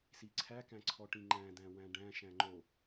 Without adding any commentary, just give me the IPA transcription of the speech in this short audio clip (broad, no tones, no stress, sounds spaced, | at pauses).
s i ǀʰ æ k æ̃ ǀʰ ɔ ʈ ĩ ŋ͡ǃ æ̃ d æ̃ w æ̃ ɖ æ̃ ʃ æ̃ ŋ͡ǃ o